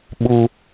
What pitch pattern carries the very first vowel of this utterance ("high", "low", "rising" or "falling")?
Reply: high